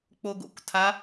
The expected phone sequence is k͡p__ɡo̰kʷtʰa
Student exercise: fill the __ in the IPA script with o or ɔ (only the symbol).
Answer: o